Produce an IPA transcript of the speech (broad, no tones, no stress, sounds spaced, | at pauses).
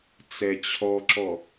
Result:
t͡s ɛ t͡ɕʰ ɔ ǁ ɔ